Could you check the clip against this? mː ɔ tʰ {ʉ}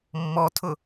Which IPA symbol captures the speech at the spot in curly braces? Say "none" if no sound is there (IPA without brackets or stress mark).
ʊ